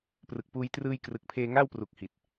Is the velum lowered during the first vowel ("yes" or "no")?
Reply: no